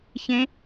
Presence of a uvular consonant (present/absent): absent